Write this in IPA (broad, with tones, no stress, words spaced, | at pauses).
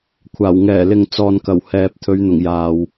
kʷʰaː˨˩w ŋɛː˨˩lɪ˨ŋ t͡sɔː˨nkɐ˨˩w hɛː˨p̚ t̪ʰɵ˨˧ɥn̪ʊ˨˩ŋ jaː˨w